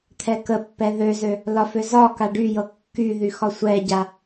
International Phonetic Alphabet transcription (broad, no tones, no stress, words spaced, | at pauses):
t̪ʰɛkəpːɛ ðøzø | lɒfø zɒ kaɖyjɤ kːyðy xɒsʷɛɟa